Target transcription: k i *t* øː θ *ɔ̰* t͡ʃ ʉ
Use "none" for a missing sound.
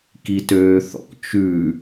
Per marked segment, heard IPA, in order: t, ɔ̰

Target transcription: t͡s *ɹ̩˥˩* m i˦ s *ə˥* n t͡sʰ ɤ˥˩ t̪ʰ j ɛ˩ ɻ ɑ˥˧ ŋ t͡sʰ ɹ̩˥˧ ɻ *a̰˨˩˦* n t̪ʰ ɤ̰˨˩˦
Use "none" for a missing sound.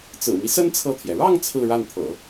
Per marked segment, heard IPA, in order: ɹ̩˨˩, ə˥, a˥˩

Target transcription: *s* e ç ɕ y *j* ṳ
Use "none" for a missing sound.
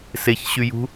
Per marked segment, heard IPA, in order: s, j

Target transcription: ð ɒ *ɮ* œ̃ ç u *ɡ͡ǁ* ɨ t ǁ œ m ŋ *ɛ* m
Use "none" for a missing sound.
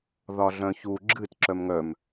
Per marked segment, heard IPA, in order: ɮ, ɡ͡ǁ, œ

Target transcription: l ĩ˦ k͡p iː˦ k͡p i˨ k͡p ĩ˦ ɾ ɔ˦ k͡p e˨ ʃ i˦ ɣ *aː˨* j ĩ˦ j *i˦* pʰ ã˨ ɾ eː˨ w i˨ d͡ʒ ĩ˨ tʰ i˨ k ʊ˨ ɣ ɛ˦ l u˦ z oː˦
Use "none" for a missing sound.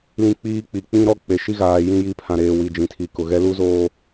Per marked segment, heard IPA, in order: aː˨, i˦

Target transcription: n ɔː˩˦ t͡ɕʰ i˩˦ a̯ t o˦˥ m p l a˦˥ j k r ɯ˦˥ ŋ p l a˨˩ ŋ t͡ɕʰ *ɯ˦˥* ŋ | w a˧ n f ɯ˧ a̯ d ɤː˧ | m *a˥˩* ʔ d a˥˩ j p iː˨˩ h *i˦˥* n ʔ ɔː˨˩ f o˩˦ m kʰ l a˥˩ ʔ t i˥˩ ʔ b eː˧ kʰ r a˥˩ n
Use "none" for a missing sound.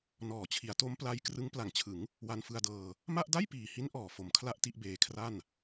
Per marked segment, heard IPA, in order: ɯ˩˦, a˥˩, i˦˥

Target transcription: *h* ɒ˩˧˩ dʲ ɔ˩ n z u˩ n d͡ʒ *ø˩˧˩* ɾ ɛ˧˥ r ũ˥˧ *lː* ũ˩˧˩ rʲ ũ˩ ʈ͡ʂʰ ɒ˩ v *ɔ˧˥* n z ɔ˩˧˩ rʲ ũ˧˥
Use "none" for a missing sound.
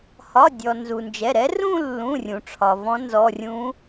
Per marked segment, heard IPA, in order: h, ɛ˩˧˩, lː, ɔ̃˧˥

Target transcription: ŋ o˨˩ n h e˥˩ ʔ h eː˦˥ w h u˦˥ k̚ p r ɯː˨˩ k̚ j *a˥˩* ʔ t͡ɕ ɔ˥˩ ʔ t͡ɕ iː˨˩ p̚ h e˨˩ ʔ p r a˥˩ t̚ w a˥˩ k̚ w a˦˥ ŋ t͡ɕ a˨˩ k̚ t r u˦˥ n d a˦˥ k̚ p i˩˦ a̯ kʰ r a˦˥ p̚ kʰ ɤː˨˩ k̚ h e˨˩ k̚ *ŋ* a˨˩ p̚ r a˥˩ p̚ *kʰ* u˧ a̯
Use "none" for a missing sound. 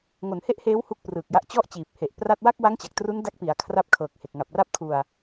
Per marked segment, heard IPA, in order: a˦˥, ŋ, kʰ

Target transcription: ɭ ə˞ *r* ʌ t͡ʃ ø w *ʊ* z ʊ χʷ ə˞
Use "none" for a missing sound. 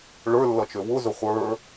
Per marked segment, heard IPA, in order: lː, ʊ

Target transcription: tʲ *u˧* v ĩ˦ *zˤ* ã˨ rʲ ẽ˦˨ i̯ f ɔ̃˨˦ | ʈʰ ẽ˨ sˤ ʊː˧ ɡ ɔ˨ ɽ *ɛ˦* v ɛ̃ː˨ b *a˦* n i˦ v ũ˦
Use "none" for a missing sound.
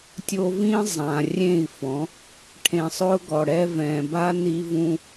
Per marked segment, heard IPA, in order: o˧, zˤ, ɛ˧, a˦

